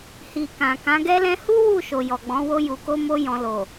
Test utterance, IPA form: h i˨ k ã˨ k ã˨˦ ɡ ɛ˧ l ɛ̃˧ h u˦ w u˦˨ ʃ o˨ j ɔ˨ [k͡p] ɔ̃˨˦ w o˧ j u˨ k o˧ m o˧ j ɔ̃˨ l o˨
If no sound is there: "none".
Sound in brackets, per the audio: ɡ͡b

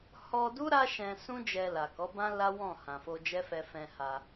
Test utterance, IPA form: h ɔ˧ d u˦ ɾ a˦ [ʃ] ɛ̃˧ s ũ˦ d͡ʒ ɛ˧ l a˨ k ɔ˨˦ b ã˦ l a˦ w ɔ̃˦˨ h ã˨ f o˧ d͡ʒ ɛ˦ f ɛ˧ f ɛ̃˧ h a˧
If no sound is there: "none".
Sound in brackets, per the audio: ʃ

